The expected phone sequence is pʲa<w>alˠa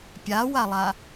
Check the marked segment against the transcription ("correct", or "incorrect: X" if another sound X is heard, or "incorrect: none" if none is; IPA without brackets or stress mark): correct